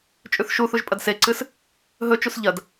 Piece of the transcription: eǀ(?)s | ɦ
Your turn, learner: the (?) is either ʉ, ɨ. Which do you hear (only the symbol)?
ɨ